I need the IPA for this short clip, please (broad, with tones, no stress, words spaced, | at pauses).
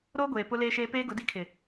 ɾoː˦ɡʷeː˨ pʊ˦leː˦ʃeː˦ peː˦ɡʊ˨˦di˦ kʰɪ˨